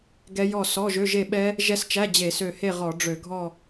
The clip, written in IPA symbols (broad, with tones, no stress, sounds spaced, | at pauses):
ɡ ɛ˦˥ j ɔ˥˨ s ɔ˧˥˧ ʒ ø˧˥˧ ʒ e˥˨ ɓ ɛ˦˥ | ʒ ɛ˦˥ s t͡ʃ æ˧˥˧ d͡ʑ e˧˩˧ s ø˧˩ h e˥˨ ʁ ɔ˧˩˧ ɖ͡ʐ ø˧˩˧ ɡʱ ɔ˥˨